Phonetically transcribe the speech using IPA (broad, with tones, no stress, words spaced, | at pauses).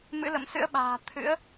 mɨ̰˧˥lə̰˧˨msɨ̰˧˥ə̯ɓa̤ː˨˩ t̪ʰɨ̰˧˥ə̯